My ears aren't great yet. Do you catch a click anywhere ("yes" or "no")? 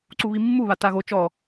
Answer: yes